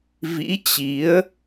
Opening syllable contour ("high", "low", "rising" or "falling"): rising